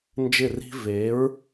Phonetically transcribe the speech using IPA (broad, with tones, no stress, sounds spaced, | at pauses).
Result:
n d͡ʒ ɪ˥˩ r i̤˥ v e˩˥ ɹ